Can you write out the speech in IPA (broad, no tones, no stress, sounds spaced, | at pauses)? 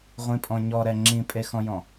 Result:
ʁʷ ĩ pʼ ɔ̃ ɲ ɔ ɾ ɛ ŋ͡ǁ ĩ pʼ e x ɔ̃ j ɔ̃